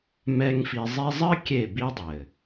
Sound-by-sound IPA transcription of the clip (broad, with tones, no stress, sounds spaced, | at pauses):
m ɛ˦ ŋ f i˧ zˤ i˧ zˤ ɘ˦ kʲ e˦˨ b i˦ dˤ ɘ˨